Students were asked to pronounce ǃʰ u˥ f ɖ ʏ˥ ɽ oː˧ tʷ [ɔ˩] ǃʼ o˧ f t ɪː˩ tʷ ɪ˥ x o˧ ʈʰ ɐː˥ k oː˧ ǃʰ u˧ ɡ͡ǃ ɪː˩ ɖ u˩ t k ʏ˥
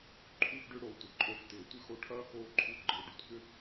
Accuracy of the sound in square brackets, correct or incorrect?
incorrect: ə˩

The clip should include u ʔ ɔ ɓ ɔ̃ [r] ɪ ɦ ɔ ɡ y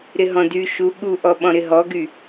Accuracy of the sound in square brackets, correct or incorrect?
incorrect: ɾ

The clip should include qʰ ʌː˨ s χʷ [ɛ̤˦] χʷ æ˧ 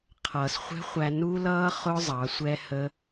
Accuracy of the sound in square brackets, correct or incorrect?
correct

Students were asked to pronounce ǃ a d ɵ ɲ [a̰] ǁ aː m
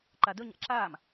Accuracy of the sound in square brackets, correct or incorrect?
correct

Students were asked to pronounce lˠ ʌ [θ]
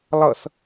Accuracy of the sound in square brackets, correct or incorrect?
correct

